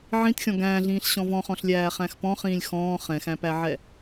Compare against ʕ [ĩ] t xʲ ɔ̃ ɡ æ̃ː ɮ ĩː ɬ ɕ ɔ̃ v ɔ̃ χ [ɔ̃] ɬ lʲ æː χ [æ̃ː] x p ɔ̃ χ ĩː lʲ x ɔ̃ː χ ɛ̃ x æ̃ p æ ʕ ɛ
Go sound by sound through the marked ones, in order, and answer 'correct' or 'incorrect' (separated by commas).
correct, correct, incorrect